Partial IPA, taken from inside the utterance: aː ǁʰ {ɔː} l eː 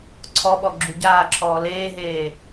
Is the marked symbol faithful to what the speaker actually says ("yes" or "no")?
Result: yes